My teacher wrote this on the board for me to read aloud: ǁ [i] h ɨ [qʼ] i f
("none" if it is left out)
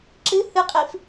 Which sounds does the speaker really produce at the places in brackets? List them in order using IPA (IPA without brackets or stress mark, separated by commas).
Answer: ɨ, qʼ